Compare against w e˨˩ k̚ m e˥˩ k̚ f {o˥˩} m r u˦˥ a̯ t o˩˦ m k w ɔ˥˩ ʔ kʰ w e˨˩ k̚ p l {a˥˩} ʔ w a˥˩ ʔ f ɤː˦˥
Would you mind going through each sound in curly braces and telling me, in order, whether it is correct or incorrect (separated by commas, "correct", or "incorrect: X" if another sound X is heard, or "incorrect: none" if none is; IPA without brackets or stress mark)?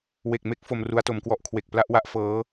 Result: incorrect: o˧, correct